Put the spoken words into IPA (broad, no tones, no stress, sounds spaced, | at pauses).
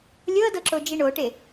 lʲ ɤ d ɤ ǁ o d͡ʒ i ɳ o ʈ e